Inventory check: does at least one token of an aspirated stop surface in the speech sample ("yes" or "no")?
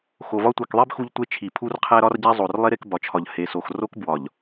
yes